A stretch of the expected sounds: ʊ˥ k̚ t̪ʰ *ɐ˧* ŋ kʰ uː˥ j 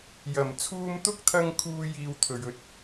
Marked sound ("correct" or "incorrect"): correct